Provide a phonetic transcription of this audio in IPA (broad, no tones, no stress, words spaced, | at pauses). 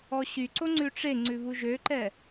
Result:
ɔɕyǀo ŋ͡ǀʉʈ͡ʂeŋ͡ǀʉ βuʒøǃɛ